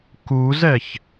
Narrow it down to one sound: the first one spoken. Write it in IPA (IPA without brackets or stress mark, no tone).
k